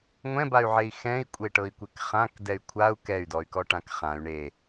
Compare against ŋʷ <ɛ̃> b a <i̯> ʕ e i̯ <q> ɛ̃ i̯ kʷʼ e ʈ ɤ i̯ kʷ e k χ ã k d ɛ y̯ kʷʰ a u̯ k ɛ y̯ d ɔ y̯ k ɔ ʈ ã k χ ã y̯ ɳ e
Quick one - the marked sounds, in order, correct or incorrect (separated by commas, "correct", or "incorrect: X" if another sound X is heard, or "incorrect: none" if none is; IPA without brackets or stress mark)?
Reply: correct, incorrect: y̯, incorrect: x